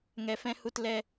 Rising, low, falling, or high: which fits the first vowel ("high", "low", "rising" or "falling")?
low